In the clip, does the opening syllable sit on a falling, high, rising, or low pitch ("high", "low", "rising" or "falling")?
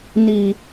low